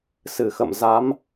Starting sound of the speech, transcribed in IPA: s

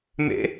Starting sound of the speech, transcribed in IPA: m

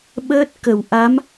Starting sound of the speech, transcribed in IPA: ɓ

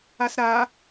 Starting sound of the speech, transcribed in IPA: a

